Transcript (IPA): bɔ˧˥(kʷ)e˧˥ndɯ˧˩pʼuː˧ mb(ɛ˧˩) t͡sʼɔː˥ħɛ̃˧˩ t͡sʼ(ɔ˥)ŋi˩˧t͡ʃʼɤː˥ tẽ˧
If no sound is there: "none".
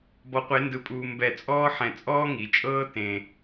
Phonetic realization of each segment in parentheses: qʷ, ɛ˧˩, ɔː˥

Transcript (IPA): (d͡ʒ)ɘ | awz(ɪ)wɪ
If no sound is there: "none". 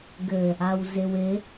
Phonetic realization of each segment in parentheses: ɡ, ɪ

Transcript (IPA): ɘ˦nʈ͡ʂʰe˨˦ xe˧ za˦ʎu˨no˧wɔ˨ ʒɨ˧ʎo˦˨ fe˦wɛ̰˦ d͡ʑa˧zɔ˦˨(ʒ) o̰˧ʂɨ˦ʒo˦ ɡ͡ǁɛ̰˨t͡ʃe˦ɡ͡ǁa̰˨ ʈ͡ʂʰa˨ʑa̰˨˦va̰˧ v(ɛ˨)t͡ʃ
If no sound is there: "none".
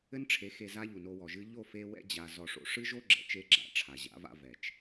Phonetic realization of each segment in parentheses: ʂ, ɛ˨

